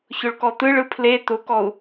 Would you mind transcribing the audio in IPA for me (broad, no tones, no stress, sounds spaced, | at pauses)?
ç ʊ ɭ k ɔ t̪ ɯ ɭ ɯ pʰ l e t̪ ʊ k ɔ u̯